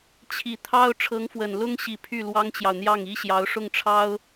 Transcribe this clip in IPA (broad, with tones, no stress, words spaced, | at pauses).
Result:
t͡ɕʰi˨˩ t̪ʰɑ˥ʊ̯ ʈ͡ʂʰɤ˧˥ŋfwə˨˩nlʊ˥ŋɕi˨˩ pʰy˥˩lwɑ˥ŋt͡ɕjɑ˨ʊ̯n̪jɑ˥˩ŋ i˥ɕjɑ˧˥ʊ̯ʂʊ˥˩ŋʈ͡ʂʰɑ˥ʊ̯